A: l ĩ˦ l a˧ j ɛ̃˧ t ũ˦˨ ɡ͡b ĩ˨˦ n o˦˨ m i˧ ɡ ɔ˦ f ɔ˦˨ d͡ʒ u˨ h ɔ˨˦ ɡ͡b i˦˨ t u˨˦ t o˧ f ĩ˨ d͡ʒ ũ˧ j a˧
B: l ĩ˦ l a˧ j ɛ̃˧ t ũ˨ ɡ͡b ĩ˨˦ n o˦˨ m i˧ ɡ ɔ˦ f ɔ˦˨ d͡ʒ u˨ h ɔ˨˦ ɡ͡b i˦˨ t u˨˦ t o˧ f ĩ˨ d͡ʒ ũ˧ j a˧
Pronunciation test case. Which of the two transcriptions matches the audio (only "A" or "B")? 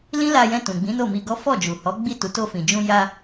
B